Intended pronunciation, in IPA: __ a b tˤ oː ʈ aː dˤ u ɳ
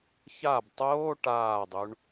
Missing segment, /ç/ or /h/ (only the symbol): ç